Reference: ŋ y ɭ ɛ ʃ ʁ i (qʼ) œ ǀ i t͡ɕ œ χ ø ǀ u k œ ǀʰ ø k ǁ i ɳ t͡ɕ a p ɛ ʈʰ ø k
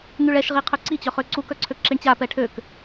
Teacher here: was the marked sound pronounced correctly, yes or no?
no